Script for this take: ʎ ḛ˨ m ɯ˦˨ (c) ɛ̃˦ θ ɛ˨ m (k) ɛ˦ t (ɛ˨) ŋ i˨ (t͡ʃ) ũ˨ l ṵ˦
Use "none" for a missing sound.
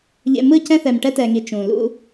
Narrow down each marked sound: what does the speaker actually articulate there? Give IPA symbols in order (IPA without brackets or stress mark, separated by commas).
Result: c, ʈ, ɛ˨, t͡ʃ